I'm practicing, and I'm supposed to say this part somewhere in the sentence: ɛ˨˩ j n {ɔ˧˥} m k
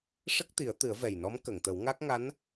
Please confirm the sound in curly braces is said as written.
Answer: yes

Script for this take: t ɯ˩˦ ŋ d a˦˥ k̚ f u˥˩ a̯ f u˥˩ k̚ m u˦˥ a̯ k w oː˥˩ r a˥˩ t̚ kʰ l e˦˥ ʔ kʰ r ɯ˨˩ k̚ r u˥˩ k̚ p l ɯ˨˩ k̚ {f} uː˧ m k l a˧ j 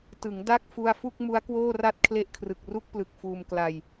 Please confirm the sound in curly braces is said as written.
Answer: yes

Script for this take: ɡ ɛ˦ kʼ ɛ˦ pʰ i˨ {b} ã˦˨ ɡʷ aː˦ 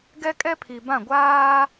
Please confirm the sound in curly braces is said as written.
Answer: yes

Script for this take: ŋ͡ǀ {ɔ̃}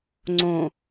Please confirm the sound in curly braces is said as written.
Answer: no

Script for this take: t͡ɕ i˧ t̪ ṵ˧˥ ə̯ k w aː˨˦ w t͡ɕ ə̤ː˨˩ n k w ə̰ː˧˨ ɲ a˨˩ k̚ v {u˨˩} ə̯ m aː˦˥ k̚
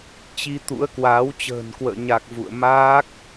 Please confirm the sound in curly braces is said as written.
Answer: no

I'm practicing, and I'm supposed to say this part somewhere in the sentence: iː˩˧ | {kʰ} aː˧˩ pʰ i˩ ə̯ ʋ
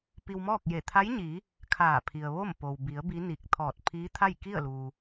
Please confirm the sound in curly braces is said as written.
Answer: yes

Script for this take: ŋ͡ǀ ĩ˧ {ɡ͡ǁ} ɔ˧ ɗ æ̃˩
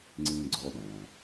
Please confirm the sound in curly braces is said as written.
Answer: no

